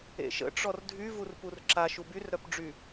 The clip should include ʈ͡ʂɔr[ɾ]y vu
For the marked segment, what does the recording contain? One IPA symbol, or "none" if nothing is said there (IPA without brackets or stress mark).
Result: dʱ